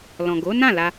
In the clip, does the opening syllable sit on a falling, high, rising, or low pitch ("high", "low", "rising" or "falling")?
low